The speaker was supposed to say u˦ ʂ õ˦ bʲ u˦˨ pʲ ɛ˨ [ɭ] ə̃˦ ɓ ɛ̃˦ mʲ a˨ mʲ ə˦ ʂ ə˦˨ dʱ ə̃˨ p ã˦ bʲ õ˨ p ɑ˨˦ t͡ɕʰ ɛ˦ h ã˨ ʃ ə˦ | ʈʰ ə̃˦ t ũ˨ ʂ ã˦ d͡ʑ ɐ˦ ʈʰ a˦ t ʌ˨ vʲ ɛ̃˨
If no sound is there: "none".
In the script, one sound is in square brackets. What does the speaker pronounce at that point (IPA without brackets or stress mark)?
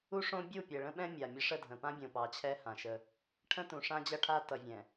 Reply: ɭ